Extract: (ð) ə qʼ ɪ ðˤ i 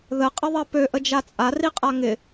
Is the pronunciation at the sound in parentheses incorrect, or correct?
correct